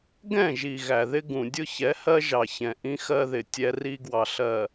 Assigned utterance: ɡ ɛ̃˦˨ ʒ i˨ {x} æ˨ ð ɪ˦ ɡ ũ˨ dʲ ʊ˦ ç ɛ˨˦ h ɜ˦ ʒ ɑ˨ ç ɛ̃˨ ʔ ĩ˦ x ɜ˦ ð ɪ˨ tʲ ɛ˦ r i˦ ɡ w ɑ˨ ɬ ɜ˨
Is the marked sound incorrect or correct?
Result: incorrect